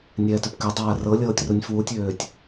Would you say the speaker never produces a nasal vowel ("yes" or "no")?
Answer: yes